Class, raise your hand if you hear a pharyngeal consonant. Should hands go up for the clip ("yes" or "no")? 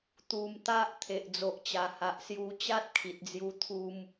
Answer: no